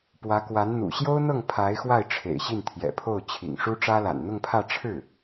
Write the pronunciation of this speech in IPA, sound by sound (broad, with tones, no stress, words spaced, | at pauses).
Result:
pwä˧˥kwa˧˥n n̪ṵ˨˩ɕjo˥ʊ̯n̪ɤ˥˩ŋ pʰa˧˥ɪ̯xwa˥˩ɪ̯ʈ͡ʂʰḛ˨˩ɪ̯ ɕi˥˩nt̪ʰjɛ̰˨˩pʰo˥˩ʊ̯ t͡ɕʰḭ˨˩ŋʂu˥ʈ͡ʂä˥ la̰˨˩nn̪ʊ˥˧ŋpʰä˥˧ ʈ͡ʂʰɻ̩˥˩